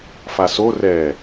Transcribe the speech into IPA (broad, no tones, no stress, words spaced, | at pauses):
faso rɛ